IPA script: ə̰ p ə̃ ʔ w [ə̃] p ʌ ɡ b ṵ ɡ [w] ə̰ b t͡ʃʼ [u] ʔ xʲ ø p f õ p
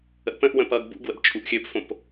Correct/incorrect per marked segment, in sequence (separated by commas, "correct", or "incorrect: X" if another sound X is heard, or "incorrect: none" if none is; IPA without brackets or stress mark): correct, correct, correct